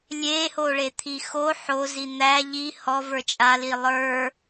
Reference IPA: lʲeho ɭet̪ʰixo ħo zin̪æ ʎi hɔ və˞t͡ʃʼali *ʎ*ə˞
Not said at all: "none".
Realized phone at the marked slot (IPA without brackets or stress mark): lˠ